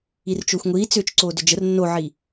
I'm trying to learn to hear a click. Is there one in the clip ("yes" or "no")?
yes